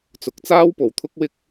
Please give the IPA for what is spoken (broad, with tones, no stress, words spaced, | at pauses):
t͡sʊ˨˥k̚t͡saː˥w po˨wt̪ʰʊ˥k̚wɪ˥k̚